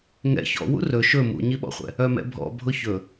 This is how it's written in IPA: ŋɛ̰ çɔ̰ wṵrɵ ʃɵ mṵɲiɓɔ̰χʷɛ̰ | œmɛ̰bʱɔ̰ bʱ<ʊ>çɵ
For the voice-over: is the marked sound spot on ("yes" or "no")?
yes